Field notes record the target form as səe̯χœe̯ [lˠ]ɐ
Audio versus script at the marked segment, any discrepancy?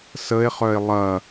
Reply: no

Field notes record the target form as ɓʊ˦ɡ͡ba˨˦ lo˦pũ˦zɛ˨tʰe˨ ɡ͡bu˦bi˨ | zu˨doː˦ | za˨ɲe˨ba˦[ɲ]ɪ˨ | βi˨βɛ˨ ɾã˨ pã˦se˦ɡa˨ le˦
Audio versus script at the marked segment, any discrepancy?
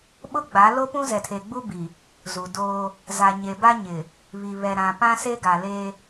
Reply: no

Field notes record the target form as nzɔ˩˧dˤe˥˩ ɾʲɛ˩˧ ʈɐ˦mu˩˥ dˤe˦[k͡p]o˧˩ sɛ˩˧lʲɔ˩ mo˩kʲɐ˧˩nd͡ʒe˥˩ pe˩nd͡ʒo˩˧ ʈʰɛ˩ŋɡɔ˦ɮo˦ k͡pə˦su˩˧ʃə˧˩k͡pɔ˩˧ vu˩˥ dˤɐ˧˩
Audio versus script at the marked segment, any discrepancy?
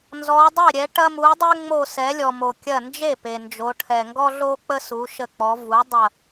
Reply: yes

